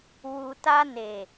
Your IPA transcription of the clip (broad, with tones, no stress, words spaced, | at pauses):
wu˨ta˧ne˨